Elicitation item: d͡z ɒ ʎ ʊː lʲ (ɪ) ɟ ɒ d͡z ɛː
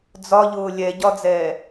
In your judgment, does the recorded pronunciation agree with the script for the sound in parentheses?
no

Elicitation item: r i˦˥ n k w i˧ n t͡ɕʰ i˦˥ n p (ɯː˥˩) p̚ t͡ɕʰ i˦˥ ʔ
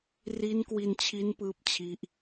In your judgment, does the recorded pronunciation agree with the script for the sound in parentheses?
yes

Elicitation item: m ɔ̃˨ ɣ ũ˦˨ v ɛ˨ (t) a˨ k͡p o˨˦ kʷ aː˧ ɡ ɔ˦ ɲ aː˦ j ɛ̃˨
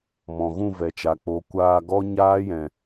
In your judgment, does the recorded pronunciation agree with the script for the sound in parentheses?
no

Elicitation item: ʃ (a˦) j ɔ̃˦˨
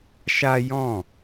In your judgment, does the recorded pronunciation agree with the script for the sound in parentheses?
yes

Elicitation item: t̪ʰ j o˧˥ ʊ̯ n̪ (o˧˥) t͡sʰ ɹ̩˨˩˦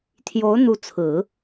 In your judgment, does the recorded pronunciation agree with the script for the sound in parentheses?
no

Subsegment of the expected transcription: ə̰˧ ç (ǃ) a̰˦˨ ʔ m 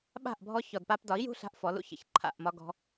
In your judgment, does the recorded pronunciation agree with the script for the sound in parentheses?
no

